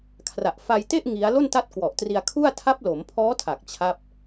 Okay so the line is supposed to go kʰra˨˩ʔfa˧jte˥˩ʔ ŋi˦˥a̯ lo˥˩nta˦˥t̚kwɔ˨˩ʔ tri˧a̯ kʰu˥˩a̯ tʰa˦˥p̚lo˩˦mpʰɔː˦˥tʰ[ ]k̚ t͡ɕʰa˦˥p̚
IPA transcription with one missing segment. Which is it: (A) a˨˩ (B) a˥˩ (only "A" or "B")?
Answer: A